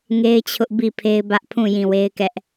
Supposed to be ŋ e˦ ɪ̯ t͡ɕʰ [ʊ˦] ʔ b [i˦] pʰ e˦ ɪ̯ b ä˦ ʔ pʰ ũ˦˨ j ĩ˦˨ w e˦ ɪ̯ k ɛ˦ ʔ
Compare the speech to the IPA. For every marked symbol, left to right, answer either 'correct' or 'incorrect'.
correct, incorrect

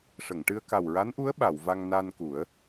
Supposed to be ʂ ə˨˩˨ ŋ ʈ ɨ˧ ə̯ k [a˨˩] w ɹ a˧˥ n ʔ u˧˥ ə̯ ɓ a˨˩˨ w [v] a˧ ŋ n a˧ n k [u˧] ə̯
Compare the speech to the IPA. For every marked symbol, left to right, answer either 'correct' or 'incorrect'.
correct, correct, incorrect

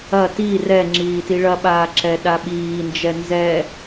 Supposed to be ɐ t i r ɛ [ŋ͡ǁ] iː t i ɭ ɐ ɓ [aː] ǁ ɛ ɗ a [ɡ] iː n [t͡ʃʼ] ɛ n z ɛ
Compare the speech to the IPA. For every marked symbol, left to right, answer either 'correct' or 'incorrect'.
correct, correct, incorrect, incorrect

